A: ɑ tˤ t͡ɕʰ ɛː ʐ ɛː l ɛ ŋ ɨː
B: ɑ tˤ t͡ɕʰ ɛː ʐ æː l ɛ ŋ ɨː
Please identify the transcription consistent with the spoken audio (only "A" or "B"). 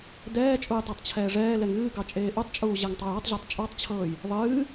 A